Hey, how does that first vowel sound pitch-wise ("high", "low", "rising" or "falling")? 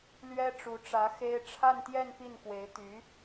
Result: high